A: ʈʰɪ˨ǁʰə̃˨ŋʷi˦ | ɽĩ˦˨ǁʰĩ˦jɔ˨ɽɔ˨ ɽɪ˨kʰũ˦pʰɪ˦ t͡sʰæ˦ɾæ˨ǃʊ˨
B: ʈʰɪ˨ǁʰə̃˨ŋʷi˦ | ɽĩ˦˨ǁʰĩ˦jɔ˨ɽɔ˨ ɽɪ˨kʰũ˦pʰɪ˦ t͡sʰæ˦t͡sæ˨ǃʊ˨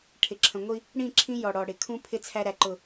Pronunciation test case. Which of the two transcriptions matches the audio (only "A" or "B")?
A